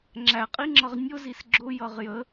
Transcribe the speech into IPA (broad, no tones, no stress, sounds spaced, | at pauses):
ŋ͡ǁ æ qʼ i ŋ͡ǁ ʌ ʁ nʲ ʊ z i s ɡ͡ǁ ʊ j ʌ ʁ j ə